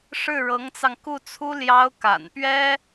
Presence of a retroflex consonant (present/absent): present